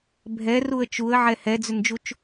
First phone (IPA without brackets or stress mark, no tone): bʱ